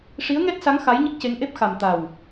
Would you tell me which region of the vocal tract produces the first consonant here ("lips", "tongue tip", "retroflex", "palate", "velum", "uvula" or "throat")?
retroflex